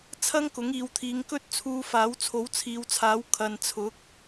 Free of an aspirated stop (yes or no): no